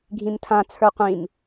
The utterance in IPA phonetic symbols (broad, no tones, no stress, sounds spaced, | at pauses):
ɡʱ ĩ m tʰ ã t͡sʰ ə˞ qʷ ĩ m